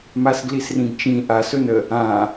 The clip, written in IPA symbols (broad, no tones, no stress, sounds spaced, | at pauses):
m a s ɡ l i s r ĩ ɡ t͡ʃ ĩ ʔ a s ɵ n ə | ã